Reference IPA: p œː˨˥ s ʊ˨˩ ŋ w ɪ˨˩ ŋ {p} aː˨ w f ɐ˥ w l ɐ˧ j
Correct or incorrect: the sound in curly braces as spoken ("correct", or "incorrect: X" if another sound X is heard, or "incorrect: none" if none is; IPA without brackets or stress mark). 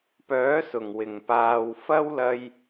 correct